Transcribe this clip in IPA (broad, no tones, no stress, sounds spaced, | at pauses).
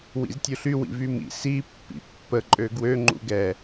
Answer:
w ḭ z tʲ u ɬ y w ḭ v y m ḭ s i pː ḭ pː ə ǃʼ ø ɡ w ø ŋ͡ǃ ṵ ɡ ɛ